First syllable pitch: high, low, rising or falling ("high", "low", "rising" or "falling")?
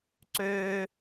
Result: high